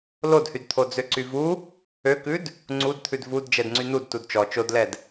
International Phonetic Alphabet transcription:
l o d h y d t̪ʰ o d͡z ø ǀ y v u | ø k ʉ d | ŋ͡ǀ u d t̪ʰ ʉ d v u d d͡ʒ ɛ d ŋ͡ǀ y n u d t u d t͡ʃ ɔ t͡ʃ o d l ɛ d

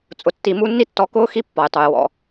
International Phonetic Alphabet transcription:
t͡sʼ ʊ˨ tː i˨ m u˦ nː i˥ tː ɔ˦ k ʊː˥ x i˦ pː ɔ˩ j tˤ u˩ j w ɔ̰˨

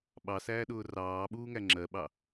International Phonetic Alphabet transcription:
ɓ ɑ s æː ɗ ʊː r ɑː ɓ uː ŋ æ ŋ͡ǁ ɜ ɓ ɑ

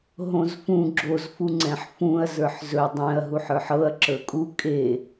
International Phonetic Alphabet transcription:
ɦ õ z f ũ ɡ͡ǁ o z f u ŋ͡ǀ ɛ̃ ħ f ũ ɐ̯ z ə˞ ħ z ɵ dˤ ɛ̃ ɐ̯ ɦ u ħ ə˞ ħ ɤ ɐ̯ ǁ ə˞ kʼ u kʼ e

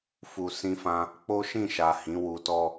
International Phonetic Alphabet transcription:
f u˨ s ĩ˧ f ã˧ | k͡p o˦ ʃ ĩ˦˨ ʃ a˨ h ĩ˨˦ w u˧ t ɔ˦

